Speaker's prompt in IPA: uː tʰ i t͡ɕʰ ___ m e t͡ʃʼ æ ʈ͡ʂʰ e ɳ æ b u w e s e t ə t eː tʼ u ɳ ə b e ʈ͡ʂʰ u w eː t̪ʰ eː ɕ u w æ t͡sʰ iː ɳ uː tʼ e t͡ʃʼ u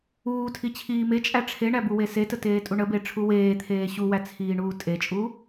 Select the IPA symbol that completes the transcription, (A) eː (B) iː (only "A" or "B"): B